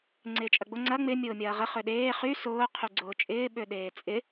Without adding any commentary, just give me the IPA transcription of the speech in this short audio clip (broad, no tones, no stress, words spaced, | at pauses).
ŋ͡ǀɪːt͡ʃʼɐɡ͡bʊ ŋ͡ǀɐ ŋ͡mɪ mʲʊːmʲɐːʁə χøɗeː χy sʊː qʰyɡ͡ǀʊːt͡ʃʼɪː ɓøɗeːt͡sʼɪ